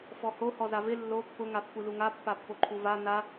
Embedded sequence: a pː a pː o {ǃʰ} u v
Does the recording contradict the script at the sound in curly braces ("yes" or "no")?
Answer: no